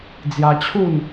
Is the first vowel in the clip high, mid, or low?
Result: low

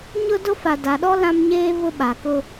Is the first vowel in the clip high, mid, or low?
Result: high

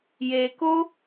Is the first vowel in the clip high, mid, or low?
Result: mid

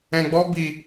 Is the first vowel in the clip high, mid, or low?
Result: mid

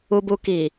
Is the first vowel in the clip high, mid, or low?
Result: high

